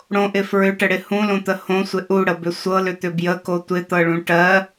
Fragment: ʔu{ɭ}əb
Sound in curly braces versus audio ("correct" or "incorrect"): incorrect